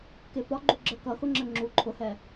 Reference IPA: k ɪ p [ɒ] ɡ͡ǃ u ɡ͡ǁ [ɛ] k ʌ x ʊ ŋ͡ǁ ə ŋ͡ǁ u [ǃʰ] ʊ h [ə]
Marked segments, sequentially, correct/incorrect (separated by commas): correct, incorrect, correct, incorrect